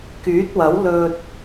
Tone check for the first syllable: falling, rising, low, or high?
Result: rising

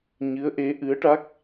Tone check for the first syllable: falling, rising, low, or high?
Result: rising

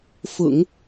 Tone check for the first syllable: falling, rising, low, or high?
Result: low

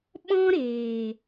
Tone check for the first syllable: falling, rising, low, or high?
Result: high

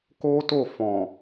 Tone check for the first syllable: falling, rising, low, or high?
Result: high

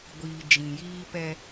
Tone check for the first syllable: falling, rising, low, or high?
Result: low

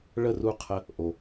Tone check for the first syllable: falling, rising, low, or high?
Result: falling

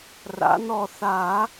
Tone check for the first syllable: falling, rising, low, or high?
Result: rising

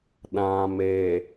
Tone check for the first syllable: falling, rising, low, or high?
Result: low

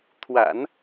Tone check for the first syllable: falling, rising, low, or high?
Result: low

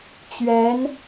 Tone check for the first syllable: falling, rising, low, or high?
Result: rising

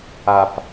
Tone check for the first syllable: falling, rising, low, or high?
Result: low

